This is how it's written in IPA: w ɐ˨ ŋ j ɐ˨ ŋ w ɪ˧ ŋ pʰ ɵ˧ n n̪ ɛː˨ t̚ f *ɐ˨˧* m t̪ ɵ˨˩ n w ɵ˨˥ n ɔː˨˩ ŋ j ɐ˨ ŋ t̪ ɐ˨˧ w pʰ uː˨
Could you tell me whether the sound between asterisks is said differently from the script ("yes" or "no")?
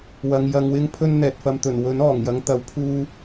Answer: yes